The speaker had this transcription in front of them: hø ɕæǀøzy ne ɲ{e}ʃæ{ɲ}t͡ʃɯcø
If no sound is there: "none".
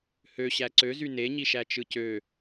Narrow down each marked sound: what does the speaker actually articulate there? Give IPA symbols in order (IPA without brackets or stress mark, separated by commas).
i, none